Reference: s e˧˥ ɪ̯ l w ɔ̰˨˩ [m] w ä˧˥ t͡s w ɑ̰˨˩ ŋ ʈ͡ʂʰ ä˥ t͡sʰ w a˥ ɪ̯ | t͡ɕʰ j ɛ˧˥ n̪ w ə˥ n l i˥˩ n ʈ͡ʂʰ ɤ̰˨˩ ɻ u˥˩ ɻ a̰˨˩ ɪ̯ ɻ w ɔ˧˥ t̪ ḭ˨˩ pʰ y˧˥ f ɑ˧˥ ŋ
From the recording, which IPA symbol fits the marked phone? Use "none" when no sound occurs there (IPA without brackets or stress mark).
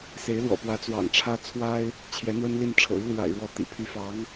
p